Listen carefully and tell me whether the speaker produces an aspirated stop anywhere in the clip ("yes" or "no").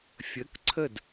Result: yes